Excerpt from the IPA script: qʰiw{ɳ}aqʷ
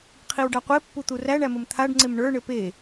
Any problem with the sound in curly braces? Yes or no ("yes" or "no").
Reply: yes